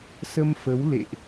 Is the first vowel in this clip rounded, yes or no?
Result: no